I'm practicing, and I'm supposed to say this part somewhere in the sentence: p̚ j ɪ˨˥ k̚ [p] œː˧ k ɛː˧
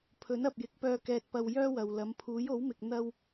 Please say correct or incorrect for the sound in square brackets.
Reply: correct